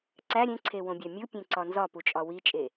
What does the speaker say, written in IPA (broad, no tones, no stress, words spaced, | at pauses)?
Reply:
ǀæ ɾʲẽǀʰewõbʲæ mʲupʲẽǀɒ nzɒput͡ʃʼɒ wit͡ʃʼe